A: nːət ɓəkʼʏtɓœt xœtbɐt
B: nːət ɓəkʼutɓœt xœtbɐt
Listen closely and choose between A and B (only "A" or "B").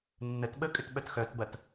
A